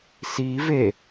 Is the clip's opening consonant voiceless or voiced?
voiceless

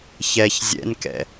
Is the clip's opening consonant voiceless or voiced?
voiceless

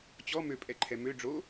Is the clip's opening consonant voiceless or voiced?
voiceless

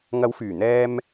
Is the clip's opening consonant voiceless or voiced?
voiced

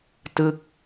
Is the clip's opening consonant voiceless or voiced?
voiceless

